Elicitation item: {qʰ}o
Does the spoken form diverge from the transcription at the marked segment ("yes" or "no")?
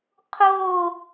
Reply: no